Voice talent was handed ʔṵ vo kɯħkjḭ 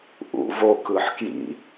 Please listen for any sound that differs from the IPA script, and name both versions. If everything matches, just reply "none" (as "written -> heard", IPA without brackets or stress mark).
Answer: none